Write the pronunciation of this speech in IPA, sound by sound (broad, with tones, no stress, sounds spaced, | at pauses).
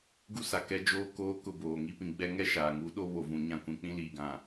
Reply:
ɡ u˦ s a˨ k ɛ˦ d͡ʒ oː˦ k oː˦ k ʊ˦˨ b oː˨ ŋ i˦ p ĩ˨ ɡ͡b ɛ˦ ŋ ɛ˦ ʃ aː˨ ŋ u˨˦ ɗ o˦ β o˨ v ũ˨ ɲ ã˦ kʷ ĩ˨ k͡p ĩ˦ l iː˨ ɡ ã˨